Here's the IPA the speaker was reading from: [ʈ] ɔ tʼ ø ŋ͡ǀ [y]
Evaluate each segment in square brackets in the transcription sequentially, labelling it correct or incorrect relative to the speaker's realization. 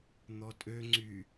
incorrect: n̪, correct

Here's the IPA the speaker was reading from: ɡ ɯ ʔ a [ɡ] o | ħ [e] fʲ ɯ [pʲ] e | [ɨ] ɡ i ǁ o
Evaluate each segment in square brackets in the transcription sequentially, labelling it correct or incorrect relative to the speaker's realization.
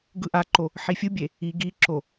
incorrect: ǃ, incorrect: i, incorrect: bʲ, incorrect: i

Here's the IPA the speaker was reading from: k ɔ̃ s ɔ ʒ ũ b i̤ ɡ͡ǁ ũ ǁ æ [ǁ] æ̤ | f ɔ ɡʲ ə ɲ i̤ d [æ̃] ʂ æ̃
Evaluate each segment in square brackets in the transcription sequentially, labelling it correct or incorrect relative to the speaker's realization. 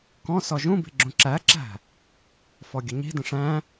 correct, incorrect: ə̃

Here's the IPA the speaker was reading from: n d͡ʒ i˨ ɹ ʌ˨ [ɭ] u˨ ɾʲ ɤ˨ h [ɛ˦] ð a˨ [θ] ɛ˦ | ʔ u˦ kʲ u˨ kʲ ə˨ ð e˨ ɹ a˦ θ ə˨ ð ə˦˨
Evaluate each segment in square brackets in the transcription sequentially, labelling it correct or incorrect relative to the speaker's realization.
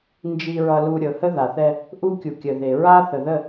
incorrect: l, incorrect: ə˦, correct

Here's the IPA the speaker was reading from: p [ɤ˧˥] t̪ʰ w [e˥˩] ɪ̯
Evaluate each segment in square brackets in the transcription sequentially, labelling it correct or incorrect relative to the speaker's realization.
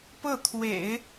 incorrect: ɤ˥˩, incorrect: ḛ˨˩˦

